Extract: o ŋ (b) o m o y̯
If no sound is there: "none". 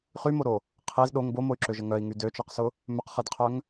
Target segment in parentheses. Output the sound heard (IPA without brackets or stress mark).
b